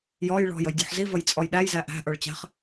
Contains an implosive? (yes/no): yes